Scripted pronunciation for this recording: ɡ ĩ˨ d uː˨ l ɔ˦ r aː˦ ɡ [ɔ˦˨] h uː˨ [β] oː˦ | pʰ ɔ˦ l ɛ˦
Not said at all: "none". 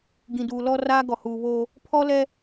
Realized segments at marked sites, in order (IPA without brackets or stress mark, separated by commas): ɔ˨, β